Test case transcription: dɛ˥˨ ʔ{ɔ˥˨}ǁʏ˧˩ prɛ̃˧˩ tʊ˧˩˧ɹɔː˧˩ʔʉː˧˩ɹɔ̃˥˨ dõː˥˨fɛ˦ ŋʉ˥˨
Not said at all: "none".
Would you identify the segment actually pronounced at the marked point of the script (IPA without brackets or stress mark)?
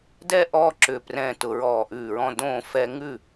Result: ɔ˥˨